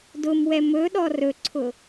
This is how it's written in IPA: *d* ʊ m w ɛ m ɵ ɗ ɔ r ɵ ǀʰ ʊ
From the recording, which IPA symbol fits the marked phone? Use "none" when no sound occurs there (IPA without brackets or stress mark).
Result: d